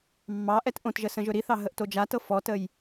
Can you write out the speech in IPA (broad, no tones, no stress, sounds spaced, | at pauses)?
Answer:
mː ɑ ʔ ɛ t ʔ õ t ʒ ə s ə̃ ʒ ɵ ɾ i θ ɑ ɦ ə ʔ t o d͡ʒ a t ɤ f ɔ t ə j